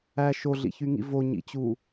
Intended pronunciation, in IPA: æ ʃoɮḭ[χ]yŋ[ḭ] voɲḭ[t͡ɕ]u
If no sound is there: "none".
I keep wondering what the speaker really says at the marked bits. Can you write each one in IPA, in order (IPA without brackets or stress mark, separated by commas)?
ç, ḭ, t͡ɕ